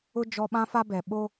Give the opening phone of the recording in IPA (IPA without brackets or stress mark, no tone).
ʊ